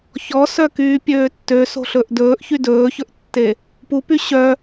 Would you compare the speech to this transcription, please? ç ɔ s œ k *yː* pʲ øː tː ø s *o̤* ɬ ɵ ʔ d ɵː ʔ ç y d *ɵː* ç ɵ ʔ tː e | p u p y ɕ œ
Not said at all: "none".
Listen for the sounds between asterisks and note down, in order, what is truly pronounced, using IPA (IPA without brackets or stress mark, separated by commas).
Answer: yː, o̤, ɵː